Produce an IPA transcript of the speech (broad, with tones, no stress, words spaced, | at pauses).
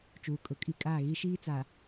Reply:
t͡ʃuː˨kʼʊ˨˦kʼi˦˨ kʼaː˦˨ɣi˦ ʃiː˦t͡sa˨